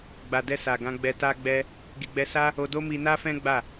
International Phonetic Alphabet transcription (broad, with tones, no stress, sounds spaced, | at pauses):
ɡ͡b a˨ d ɛ˧ s a˨ ɡ ã˧ ɡ͡b ɛ˧ t a˦ ɡ͡b ɛ˦ | ɡ i˨ ɡ͡b ɛ˧ s a˦ | o˧ d o˦ m i˧ n a˦ f ɛ̃˦ ɡ͡b a˦˨